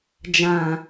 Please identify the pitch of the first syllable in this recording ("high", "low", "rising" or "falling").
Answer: low